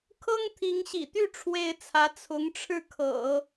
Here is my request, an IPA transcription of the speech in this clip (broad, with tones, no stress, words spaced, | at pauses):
kʰɤ˥ŋt̪ʰi˧˥ŋɕḭ˨˩t̪y˥˩ ʈ͡ʂʰwe˥ɪ̯t͡sʰä˧˥ t͡sʰʊ˧˥ŋʈ͡ʂʰɻ̩˥˩kʰɤ̰˨˩˦